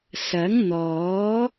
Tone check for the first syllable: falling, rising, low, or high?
rising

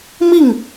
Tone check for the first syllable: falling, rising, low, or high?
falling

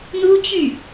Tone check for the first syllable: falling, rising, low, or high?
high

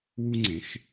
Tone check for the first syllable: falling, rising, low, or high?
high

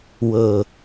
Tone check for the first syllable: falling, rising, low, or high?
low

